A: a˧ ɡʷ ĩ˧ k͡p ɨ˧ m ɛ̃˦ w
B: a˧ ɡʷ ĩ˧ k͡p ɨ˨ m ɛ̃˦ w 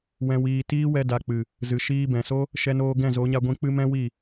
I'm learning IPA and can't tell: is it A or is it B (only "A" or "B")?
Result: A